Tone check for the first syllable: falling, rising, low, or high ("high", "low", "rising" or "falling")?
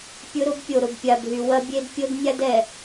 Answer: high